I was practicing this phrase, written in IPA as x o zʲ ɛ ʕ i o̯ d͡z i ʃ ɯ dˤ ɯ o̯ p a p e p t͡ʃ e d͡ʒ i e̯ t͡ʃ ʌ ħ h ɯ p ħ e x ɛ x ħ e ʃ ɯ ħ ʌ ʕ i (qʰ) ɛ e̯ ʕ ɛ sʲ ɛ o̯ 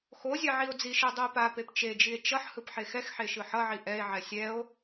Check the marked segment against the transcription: incorrect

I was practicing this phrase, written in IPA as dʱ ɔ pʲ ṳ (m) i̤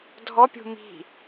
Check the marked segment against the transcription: correct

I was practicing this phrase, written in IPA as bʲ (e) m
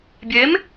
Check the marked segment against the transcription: correct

